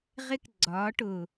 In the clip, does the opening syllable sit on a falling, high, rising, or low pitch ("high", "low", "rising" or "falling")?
high